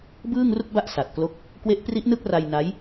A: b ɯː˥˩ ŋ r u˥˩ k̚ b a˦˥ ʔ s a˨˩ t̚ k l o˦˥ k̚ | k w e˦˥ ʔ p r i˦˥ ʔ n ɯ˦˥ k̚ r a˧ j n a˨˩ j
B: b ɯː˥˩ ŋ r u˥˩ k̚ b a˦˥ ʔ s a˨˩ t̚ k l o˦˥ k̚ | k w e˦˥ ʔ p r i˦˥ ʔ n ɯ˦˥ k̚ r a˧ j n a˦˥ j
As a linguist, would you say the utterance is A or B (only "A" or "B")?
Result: B